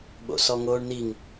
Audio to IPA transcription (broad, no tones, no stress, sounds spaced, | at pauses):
ɓ o̰ s ɔ ŋ oː ɳ n i ŋ